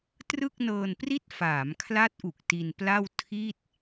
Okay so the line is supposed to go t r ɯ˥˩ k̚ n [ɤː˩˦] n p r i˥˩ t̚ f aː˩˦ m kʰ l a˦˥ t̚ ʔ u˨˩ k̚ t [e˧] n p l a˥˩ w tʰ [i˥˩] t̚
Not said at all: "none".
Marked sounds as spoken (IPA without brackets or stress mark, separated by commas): ɤː˧, i˧, i˥˩